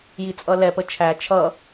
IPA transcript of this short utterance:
j i t͡sʼ ʌ l ɛ p ə t͡ʃʰ æ t͡ʃʰ ʌ

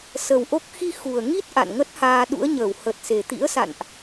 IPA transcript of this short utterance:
s ə˨˩ w ʔ o˦˥ k̚ x i˧ x u˨˩ ə̯ ŋ i˦˥ t̚ ʔ a̰˧˨ n ŋ ə˦˥ t̚ h aː˧ ɗ ṵ˧˥ ə̯ ɲ əː˧˩ w h ə˨˩ t̚ s e˨˩ t̪ ḭ˧˥ ə̯ s a̰˧˨ n ʔ

